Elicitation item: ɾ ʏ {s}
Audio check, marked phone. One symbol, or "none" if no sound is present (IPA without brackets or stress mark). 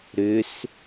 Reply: s